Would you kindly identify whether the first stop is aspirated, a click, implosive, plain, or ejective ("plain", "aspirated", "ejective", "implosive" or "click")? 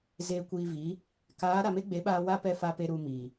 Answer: plain